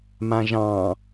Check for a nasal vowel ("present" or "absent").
present